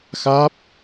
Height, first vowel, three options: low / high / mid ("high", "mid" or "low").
low